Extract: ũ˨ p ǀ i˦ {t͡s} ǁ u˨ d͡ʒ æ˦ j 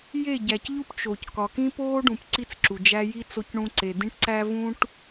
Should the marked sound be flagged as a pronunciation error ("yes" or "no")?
no